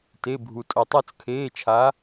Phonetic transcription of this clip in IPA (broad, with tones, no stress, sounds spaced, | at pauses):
t e˧˥˧ bʱ u˧ tʼ o˧ tˤ o˥˧ t͡s kʰ eː˧˥˧ t͡ʃʰ a˧˥